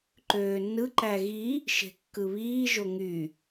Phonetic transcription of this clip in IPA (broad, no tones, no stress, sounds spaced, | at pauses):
ǃ øː nː ɯ ǃ æ ɣ i | ʃ e̤ kː ɯ β iː ʒ o ŋ y